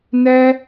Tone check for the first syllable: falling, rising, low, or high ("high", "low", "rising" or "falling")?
high